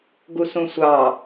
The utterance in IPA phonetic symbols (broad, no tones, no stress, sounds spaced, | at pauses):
ɡ u s ũ sʷ ɑ